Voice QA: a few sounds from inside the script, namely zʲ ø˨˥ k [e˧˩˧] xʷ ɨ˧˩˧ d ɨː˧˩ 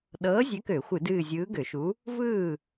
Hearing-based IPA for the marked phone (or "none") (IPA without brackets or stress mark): ø˧˩˧